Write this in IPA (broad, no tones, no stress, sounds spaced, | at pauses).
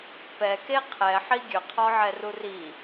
p ɛ k e qʰ ɛ ħ i ɡʲ ɵ qʰ ɔ ʕ ɛ r u r i